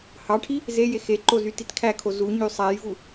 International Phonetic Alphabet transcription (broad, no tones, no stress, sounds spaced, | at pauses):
h ɑ ʈʰ i | z e j e x e ǃ o z y t i t kʰ æ kʰ o z u ɲ y sˤ æ j v u